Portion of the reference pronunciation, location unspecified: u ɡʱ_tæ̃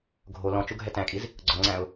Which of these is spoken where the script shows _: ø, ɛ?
ɛ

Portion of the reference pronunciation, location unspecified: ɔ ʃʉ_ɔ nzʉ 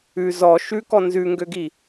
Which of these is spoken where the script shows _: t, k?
k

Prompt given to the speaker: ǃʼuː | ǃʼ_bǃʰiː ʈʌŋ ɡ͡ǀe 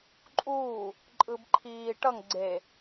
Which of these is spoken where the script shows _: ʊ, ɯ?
ɯ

